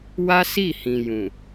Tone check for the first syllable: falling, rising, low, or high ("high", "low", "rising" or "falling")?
high